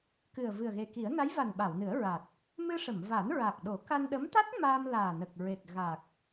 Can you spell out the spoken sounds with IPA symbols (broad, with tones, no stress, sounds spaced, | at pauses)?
k ɨ˨˩ ə̯ v ɨ˨˩ ə̯ ɣ e˨˩ k i˨˩˦ ə̯ n a˧˥ j v a˨˩ n ɓ a˨˩˨ w n ɨ˨˩˦ ə̯ ɹ a˨˩ t̚ | m ɨ˧ ʂ ə˨˩˨ m v a˨˩˦ n ɹ a˨˩ k̚ ɗ o˨˩˦ k a˧ n ɗ ə˧˥ m t̪ a˦˥ t̚ m aː˧ m l aː˨˩ n ə˨˩ k̚ ɹ e˨˩ k̚ ɣ a˨˩ k̚